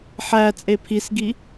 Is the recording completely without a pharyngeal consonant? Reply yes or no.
no